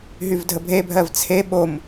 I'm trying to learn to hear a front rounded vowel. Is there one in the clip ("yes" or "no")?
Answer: yes